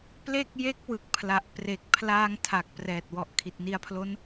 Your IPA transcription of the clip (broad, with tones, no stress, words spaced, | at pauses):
ple˥˩k̚ je˦˥k̚wɯ˨˩k̚pʰla˨˩ʔ pre˨˩k̚ pʰlaː˧ŋ tʰa˨˩k̚ prɛː˨˩t̚wɔ˨˩ʔ kʰi˨˩t̚ni˧a̯pʰlo˦˥n